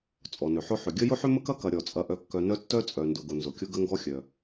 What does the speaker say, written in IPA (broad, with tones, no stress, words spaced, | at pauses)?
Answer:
t͡sʼɔ˩nʏ˩ħʊ˦ ħʏ˩ ɡʲə˦ jʊ˥ħʏ˥ mə˥kɐ˥kɐ˨ ɾʲɔ˩t͡sʼɐ˨ʔœ˨kːœ˨ nœ˦ tːœ˦ t͡sʼœ˨ndʊ˨ɡʊ˨ nzʊ˩kʲʊ˦ ɡə˦ŋɡɔ˦xʲœ˩